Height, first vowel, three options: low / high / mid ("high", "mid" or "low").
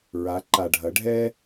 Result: low